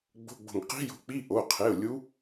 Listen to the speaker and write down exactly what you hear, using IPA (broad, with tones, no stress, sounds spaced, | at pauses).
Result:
ɡ͡b o̤˧˥˧ ɡ͡b o̤˧˩ ŋ q i̤˦˥ j o̤˨˦ k͡p i˧˥˧ ʔ o˩˧˩ qʰ e˩˧˩ ʊ̯ lʲ u˨˦